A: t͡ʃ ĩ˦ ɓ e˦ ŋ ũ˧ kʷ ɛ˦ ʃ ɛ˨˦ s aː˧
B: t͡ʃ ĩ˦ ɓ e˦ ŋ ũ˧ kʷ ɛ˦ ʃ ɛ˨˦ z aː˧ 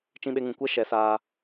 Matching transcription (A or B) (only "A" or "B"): A